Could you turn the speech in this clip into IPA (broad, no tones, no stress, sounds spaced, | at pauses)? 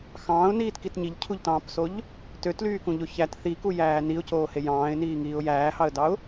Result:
x ɑ̃ː ʊ̯ n iː t k i t ɲ i ʎ cʰ u ʎ t ɑ̃ː p s o ʎ | t ø t l yː k ũ ʎ o ç æ t θ i k u j æː n i ʊ̯ c oː h e j ɑ̃ː ɪ̯ n iː ŋ iː ʊ̯ j æː h ɑ ə̯ d ɑ ʊ̯